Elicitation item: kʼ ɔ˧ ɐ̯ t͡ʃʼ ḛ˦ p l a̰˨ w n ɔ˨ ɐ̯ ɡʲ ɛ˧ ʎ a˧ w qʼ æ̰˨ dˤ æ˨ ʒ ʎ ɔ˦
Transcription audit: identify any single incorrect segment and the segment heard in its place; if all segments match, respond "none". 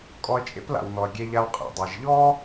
none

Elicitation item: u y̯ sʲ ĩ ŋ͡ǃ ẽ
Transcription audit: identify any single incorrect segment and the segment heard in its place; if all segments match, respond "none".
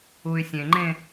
ĩ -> ẽ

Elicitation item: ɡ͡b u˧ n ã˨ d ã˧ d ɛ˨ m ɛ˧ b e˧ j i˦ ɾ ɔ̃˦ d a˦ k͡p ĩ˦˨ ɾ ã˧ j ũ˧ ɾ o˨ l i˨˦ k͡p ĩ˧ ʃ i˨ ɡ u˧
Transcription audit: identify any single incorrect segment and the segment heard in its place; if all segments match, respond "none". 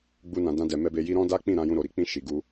l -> ɾ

